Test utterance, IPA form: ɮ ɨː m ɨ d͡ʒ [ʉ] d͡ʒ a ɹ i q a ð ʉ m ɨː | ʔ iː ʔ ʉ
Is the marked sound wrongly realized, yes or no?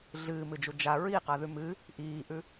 yes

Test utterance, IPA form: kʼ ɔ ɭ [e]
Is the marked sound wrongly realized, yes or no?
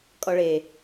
no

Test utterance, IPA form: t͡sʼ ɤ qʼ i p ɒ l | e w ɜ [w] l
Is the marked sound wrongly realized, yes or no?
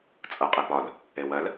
yes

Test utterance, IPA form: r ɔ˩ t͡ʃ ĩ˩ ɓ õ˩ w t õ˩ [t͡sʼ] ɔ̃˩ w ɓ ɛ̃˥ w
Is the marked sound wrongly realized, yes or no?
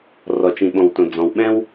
yes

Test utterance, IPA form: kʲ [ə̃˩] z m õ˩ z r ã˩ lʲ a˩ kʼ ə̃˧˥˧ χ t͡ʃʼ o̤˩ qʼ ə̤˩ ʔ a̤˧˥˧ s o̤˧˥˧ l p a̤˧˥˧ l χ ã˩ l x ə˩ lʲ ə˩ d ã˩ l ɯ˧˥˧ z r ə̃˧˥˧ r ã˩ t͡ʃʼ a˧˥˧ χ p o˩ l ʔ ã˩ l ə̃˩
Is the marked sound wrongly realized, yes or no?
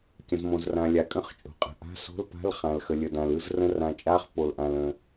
no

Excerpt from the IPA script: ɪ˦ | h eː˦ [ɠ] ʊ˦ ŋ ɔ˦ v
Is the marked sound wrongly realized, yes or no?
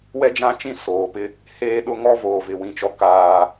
yes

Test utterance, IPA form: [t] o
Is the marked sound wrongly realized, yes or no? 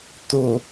no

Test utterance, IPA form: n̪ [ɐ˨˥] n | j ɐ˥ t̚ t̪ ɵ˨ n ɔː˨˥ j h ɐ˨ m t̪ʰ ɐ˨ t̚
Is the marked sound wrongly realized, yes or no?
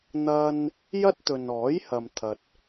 yes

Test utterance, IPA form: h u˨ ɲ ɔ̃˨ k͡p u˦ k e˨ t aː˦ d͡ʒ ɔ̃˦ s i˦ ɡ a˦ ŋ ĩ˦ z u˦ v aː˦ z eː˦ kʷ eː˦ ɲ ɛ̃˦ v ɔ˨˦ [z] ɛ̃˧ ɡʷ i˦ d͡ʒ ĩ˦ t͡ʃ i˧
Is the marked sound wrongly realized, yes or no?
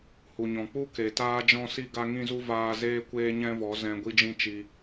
no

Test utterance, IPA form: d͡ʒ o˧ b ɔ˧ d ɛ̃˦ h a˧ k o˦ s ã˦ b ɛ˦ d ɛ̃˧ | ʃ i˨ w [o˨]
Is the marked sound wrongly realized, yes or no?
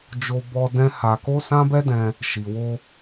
yes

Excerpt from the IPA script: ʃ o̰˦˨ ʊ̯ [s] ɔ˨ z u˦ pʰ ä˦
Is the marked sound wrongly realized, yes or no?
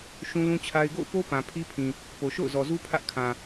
yes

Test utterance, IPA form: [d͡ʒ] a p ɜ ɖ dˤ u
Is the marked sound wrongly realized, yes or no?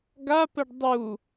yes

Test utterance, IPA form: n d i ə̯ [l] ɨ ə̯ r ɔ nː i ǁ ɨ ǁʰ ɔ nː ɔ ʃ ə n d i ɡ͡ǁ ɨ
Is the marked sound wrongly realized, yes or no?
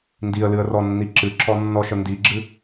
no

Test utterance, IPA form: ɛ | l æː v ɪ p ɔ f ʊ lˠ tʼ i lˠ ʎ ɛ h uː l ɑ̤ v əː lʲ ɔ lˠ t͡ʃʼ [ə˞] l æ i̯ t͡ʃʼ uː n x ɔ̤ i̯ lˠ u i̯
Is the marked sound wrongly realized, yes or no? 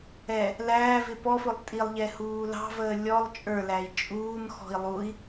no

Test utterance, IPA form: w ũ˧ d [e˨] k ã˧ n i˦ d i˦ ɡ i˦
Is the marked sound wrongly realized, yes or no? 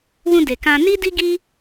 no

